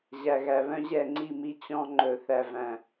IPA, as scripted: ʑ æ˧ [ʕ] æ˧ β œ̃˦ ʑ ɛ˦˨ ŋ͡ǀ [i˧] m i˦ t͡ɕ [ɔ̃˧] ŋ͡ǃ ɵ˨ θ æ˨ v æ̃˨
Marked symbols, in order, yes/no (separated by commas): no, no, yes